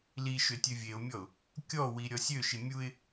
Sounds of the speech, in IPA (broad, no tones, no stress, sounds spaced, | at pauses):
l i ʃ ø tʲ ø vʲ e ʊ̯ mʲ ɔ ʊ̯ | kʲ ɔ w i ɾʲ ɔ sʲ ø ʃ i mʲ u ɪ̯